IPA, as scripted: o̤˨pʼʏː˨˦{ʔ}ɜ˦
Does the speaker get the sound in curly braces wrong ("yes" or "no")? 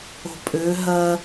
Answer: yes